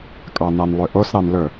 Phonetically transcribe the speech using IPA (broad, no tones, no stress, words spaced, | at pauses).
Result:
kʼɑnɑnlˠøʔos ɾɑnlɵ